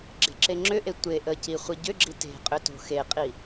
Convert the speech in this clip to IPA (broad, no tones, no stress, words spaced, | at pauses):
ɡ͡ǁe̤ǁeŋ͡ǁʏʔe tʷe ʔəci χʷiɟʏɡ͡ǁi te̤ qʼʏto̤xeqʼi